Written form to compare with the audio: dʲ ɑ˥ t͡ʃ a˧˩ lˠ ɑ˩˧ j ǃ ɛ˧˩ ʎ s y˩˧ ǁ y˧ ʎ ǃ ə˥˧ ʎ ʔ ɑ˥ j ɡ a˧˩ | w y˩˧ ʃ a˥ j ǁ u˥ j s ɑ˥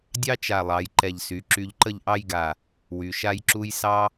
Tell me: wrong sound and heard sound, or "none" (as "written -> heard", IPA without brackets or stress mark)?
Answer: none